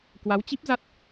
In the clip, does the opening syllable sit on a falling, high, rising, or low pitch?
rising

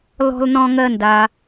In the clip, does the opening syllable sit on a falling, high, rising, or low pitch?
high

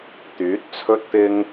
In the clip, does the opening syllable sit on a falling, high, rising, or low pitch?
rising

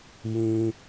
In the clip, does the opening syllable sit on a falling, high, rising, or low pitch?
high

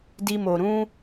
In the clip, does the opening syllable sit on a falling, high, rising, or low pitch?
high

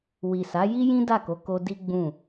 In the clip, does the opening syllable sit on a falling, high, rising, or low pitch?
low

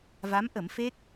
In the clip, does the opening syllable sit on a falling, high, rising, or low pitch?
rising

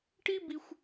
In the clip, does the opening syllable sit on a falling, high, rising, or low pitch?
high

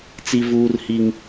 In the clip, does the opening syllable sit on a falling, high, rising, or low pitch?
high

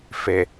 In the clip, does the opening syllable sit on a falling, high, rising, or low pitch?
low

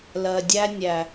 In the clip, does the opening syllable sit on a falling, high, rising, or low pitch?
low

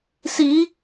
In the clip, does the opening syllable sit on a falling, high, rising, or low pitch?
rising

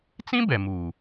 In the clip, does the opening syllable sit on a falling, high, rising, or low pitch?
high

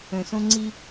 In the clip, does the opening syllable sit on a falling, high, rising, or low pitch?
low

